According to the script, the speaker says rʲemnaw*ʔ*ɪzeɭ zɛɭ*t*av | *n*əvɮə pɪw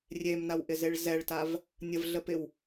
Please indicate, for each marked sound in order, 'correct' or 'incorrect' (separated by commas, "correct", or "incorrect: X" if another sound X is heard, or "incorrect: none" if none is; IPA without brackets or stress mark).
correct, correct, incorrect: nʲ